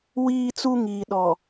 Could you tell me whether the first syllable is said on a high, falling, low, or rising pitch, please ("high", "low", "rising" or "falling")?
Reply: high